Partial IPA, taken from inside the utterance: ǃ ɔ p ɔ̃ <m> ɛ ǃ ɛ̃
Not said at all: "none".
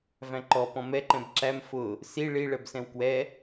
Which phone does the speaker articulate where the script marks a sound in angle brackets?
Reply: m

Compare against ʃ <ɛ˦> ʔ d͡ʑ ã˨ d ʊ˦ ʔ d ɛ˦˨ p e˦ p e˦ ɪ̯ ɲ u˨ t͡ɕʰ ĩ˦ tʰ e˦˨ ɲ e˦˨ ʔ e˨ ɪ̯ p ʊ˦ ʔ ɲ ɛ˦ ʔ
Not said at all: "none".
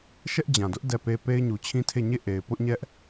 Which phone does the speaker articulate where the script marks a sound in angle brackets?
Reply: ɛ˦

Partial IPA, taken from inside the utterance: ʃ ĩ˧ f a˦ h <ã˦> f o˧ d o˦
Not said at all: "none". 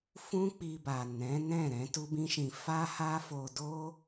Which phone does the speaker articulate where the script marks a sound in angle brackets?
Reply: a˦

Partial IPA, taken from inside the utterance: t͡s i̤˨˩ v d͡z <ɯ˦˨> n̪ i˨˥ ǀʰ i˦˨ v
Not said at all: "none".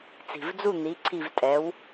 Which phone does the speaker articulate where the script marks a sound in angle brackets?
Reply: u˦˨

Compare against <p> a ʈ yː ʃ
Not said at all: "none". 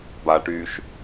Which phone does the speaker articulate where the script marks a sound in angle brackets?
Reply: b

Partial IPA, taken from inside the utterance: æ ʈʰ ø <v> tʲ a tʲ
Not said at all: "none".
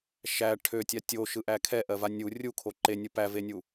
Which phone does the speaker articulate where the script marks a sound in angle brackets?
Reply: none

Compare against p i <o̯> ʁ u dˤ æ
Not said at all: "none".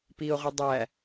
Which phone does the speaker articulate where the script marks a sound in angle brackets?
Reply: o̯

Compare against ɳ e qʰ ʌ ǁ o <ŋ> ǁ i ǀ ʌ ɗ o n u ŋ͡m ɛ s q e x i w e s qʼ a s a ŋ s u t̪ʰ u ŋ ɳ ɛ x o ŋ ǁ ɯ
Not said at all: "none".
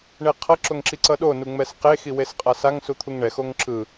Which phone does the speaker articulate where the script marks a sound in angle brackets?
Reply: ŋ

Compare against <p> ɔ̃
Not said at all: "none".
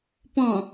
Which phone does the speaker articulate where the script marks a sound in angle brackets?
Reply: p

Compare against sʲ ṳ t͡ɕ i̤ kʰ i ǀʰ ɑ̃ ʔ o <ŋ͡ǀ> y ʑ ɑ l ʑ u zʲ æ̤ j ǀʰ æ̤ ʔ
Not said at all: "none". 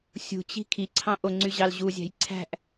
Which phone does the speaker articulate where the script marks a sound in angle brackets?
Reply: ŋ͡ǀ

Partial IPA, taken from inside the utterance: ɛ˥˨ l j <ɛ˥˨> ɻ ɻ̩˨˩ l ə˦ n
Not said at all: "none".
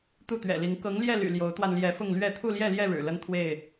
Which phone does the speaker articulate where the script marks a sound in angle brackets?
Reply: ɛ˥˨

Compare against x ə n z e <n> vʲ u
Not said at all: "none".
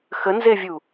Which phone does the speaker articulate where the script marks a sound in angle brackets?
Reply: none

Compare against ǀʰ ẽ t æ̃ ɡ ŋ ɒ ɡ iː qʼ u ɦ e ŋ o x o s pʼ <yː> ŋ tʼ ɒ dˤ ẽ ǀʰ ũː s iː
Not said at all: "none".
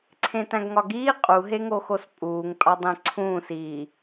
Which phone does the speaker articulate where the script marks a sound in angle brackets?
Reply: uː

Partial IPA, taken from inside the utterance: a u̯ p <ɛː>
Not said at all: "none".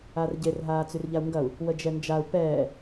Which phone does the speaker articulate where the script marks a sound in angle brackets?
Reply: ɛː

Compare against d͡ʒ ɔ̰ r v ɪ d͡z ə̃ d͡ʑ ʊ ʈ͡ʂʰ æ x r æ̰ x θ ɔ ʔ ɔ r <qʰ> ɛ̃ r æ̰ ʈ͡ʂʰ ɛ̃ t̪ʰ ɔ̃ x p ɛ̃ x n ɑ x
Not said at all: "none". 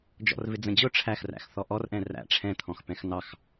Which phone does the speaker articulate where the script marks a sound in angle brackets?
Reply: ʔ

